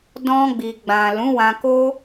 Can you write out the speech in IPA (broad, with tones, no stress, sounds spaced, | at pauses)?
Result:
d ɔ̃˧ ɡ͡b i˨ ɡ͡b ã˨ l ũ˨˦ w ã˧ k o˧